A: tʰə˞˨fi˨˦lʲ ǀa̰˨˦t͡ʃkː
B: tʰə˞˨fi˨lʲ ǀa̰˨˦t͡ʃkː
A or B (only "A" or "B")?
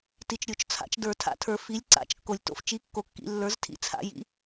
A